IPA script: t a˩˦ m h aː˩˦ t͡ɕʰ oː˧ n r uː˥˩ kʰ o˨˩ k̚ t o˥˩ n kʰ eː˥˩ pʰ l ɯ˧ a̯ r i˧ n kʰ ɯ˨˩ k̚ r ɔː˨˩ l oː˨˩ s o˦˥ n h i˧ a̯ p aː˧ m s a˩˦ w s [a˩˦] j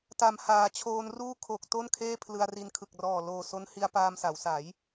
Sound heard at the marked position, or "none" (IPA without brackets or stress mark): a˩˦